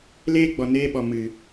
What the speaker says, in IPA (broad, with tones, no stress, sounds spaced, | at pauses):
l eː˦ ɡ͡b ɔ˨ n eː˧ ɓ ɔ˨ m ɨ˨